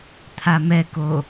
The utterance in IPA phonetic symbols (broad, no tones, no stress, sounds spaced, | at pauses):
t̪ʰ a m ɛ k o